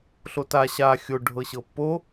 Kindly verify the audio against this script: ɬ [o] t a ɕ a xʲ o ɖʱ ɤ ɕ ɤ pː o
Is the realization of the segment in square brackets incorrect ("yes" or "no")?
no